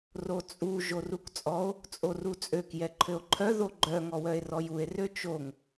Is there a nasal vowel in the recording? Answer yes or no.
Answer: no